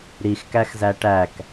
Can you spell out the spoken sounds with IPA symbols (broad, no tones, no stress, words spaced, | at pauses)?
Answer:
ɾixkæxzæ ʈæk